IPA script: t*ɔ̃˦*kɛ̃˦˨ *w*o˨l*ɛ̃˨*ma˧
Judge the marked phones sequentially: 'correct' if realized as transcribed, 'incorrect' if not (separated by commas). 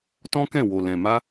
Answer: correct, correct, correct